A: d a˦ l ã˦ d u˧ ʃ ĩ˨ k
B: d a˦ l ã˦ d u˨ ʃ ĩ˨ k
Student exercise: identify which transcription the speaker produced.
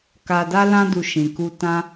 A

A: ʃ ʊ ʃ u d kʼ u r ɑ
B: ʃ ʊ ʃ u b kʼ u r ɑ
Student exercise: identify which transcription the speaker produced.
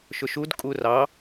A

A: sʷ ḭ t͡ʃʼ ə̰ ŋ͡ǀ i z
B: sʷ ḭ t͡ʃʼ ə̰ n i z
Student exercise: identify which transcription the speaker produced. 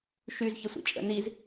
B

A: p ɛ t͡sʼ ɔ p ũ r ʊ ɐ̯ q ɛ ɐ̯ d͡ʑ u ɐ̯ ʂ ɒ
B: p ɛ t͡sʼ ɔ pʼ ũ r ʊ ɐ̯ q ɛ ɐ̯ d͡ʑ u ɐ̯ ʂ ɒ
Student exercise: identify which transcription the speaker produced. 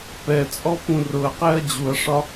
A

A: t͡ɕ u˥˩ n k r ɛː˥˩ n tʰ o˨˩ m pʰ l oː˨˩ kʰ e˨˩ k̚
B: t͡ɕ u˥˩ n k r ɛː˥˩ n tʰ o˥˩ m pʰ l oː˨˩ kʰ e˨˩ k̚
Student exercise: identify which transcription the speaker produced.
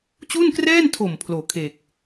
A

